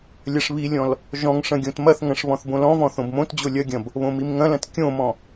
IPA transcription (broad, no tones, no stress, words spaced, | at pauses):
lʲɐʂβilʲɔ̃l | ʒɔ̃ŋ ʂɐ̃ɡʲõtmɐθŋɐ̃ʂ βɔ̃θbõlɔ̃vɔ̃ θõbmõtd͡ʑo lʲɐɡʲɐ̃b | βõmimŋɐ̃lɐ̃t kʲõmɔ̃